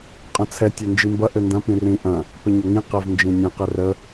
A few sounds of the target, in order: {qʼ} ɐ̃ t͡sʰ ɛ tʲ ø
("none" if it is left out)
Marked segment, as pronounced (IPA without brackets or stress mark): qʼ